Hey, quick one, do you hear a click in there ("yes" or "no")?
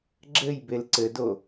yes